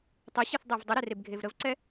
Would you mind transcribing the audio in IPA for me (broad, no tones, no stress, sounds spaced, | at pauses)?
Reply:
tˤ ə ɕ e θ dˤ e v dˤ ə ɾ ɛ r e b ɡʱ e v ɾ ə v ǀ ɛ